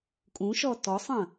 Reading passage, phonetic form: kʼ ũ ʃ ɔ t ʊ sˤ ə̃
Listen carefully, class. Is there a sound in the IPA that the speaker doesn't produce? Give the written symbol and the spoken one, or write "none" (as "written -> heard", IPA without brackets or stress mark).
ʊ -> ɔ